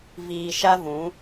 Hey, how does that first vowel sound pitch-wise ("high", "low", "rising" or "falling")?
low